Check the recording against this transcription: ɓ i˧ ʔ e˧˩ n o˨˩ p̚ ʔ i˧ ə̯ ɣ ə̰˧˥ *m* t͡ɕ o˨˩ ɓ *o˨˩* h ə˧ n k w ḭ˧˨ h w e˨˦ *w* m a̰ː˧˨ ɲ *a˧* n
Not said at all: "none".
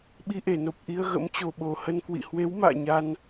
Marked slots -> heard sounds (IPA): m, o˨˩, w, a˧

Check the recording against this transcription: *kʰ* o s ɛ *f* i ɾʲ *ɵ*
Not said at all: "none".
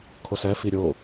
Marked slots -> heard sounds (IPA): kʰ, f, o

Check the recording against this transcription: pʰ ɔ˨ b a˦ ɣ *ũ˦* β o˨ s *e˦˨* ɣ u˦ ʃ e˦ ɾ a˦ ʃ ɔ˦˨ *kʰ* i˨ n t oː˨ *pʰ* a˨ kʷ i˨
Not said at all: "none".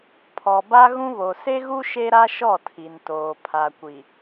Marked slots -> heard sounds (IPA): ũ˦, e˦, tʰ, pʰ

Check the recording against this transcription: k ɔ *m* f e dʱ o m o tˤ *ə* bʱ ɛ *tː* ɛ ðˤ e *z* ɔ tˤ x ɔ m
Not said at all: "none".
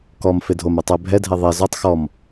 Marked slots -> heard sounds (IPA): m, ɛ, dʱ, z

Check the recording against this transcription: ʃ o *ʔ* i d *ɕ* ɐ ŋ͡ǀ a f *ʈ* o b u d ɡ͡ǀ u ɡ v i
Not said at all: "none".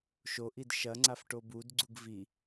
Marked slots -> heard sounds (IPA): ʔ, ʃ, ʈ

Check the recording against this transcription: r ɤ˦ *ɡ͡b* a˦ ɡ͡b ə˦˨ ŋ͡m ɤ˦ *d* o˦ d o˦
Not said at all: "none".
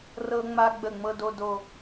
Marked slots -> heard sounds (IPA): ŋ͡m, d

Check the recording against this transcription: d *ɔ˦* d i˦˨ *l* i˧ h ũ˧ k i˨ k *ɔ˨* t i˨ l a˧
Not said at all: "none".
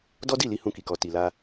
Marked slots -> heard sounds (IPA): ɔ˦, l, ɔ˨

